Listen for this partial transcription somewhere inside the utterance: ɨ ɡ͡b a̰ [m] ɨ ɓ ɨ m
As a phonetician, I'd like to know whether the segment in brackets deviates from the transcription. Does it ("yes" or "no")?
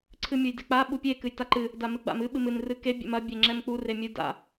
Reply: no